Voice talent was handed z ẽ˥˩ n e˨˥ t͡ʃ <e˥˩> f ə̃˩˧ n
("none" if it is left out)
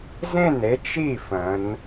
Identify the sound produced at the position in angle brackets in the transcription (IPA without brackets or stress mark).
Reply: i˥˩